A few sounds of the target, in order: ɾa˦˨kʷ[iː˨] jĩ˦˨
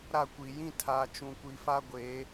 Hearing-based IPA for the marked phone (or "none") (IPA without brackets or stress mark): i˨